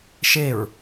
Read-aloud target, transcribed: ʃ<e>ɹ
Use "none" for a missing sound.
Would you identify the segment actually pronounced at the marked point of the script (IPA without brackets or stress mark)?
e